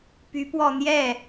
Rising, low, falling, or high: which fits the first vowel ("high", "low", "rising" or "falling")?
rising